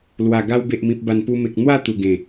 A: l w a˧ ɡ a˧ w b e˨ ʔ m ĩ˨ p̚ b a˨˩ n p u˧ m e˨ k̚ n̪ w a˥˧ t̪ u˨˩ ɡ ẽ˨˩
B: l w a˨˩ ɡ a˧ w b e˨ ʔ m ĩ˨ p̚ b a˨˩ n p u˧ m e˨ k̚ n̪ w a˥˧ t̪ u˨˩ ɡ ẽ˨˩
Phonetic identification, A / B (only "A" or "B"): B